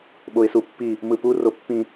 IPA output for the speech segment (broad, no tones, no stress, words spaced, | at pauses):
ɓoɪ̯supːi | mɯpu ropːĩ